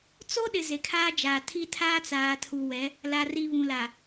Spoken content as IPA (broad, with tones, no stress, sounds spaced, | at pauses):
t͡s o˦ ɗ ɪ˨ z e˨ kʰ aː˦ d͡ʒ aː˨ tʰ i˦ tʰ aː˦ t͡s aː˨ tʰ u˨ w ɛ˨˦ | l a˨ r i˨ β ũ˨ l a˨